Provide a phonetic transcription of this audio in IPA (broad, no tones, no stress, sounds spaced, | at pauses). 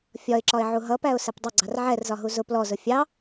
fʲ ɒ ɪ̯ ǁ ɒ ɪ̯ ʕ u ɦ ʌ p æ ʊ̯ s ɛ p dˤ ʌ ɡ͡ǀ ɑ r ʕ ɛ r z ɒ ɦ u z ʊ p l ɔ z ʊ fʲ ɑ